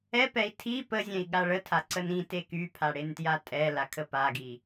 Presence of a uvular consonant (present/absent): absent